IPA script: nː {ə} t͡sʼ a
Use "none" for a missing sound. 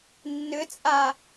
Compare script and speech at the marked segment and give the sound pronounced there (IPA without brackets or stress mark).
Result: ʏ